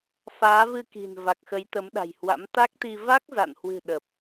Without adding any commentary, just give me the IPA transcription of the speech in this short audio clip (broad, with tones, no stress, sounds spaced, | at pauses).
f aː˨˦ v ɨ˧ k i̤˨˩ n v a˨˩ k̚ x ə˨˦ j t̪ ə˨˦ m ɗ a̤˨˩ j h w a̰˧˥ m t̪ a˦˥ k̚ t̪ i˧ v a˦˥ k̚ z a̰˧˨ n h w ɨ̤˨˩ ɗ ə˨˩ p̚